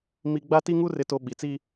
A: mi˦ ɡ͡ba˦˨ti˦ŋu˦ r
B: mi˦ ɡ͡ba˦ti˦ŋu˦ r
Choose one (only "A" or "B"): B